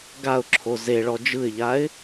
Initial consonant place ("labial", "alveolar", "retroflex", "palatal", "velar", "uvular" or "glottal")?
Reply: velar